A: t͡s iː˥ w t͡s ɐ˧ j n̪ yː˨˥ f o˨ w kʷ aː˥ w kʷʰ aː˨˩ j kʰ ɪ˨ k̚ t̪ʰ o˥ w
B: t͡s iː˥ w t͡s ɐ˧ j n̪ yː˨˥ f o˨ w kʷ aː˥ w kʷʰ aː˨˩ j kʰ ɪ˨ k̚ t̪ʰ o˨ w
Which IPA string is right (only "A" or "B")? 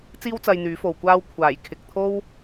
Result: A